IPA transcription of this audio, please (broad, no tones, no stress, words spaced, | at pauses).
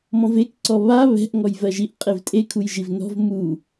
mɔ̃vekǀɔ βa βɛ̤ʔ ŋɔjvɜʒiʔ qʼevtʼekʰujʒiv nɔ̤v mu